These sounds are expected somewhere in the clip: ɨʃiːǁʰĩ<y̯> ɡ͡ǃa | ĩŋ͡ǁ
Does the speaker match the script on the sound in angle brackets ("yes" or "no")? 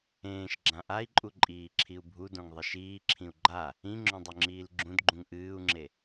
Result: no